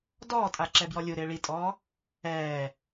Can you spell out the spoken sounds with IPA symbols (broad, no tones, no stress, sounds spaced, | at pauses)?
d ɔː tʼ a ǁ ɛ b j ɔ lʲ u ɾ ɪː ɭ i tʼ ɔː | ɛː